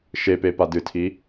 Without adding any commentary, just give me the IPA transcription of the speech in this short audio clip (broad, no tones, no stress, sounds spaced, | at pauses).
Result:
ʃ e p e p a d ɨ tʰ i